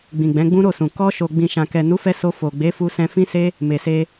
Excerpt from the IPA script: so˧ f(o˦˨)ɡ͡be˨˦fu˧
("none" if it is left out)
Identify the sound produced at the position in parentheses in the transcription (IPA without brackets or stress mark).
o˨